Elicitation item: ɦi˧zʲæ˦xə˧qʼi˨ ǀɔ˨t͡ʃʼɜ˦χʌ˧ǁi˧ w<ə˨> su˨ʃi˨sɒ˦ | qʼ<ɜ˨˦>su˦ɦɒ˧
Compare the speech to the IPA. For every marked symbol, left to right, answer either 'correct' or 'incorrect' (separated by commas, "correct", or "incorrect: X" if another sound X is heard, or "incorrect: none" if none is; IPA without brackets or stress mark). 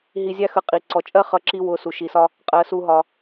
incorrect: ʊ˨, correct